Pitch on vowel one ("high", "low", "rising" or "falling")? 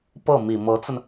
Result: falling